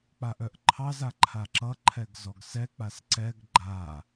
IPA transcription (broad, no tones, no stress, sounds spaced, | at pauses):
k͡p a ʔ œ ʔ ǃʰ ɑ z a ǃʰ a ǁ ʌ ǃʰ ɛ ɡ z ɔ ɡ s ɛ k͡p a s ǀ ɛ ɡ ɡ͡ǃ a